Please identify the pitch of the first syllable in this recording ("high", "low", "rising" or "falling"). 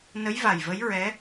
rising